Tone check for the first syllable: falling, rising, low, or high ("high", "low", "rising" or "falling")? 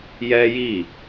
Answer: high